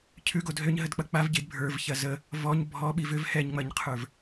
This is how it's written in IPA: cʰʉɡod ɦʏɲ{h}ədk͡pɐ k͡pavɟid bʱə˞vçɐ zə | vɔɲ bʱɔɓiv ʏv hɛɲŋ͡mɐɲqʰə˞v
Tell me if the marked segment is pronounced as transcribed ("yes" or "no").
no